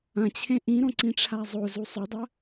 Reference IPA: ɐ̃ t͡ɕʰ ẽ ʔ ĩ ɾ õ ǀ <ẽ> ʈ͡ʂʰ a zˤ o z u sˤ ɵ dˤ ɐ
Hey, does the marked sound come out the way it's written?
no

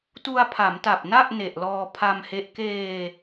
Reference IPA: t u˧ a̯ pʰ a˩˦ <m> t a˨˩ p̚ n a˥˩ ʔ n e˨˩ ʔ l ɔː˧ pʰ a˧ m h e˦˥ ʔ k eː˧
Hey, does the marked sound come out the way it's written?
yes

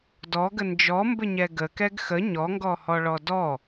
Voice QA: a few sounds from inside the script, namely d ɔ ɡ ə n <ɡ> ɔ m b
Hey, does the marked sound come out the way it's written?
no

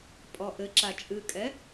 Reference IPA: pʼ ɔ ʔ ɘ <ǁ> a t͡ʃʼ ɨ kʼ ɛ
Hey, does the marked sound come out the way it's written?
yes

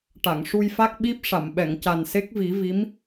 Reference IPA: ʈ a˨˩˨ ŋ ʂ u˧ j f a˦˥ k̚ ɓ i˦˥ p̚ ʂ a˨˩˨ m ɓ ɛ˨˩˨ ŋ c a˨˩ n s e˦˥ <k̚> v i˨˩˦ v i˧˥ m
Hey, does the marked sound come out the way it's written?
yes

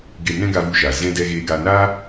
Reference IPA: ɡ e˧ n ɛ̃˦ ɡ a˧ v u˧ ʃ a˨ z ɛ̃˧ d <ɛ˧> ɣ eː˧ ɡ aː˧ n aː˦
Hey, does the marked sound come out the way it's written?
yes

